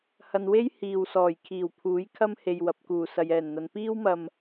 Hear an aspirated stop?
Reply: yes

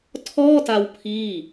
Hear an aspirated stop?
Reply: yes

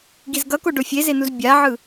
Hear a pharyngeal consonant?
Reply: yes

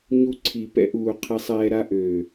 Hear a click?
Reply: yes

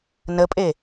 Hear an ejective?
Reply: yes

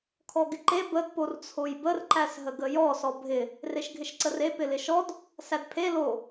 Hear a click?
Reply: yes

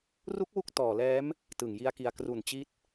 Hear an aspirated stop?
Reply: no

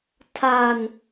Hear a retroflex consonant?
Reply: no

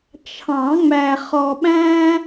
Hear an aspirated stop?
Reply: yes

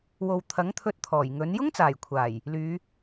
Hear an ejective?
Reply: no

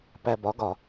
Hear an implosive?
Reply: no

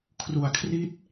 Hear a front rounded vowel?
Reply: no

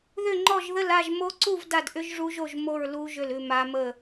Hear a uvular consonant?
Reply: no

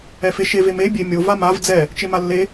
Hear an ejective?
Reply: no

